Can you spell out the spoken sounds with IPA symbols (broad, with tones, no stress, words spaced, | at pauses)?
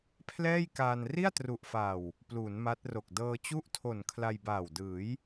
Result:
pʰlɛː˥˩jkaː˧n ri˥˩a̯tru˨˩ʔfaː˨˩w | pluː˩˦nma˦˥t̚ro˨˩k̚ dɤː˧t͡ɕu˥˩ʔtʰo˨˩n kʰla˧jbaː˨˩w dɯː˩˦j